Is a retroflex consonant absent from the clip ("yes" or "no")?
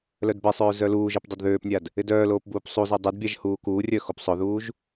yes